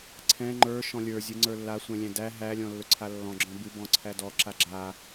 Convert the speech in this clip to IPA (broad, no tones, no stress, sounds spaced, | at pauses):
ǀʰ ɛ̃ ŋ͡ǃ ə˞ ʃ ɔ̃ lʲ ə˞ zʲ ɨ ŋ͡ǀ ə˞ lː a sʷ ɛ̃ lʲ æ̃ d æ ɦ æ lʲ ɔ̃ lː ɵ ǀʰ a lː ɔ̃ ɡ͡ǁ ɔ̃ b ɨ b ɔ̃ ǀʰ æ d ɔ ǁ a ɡ͡ǁ a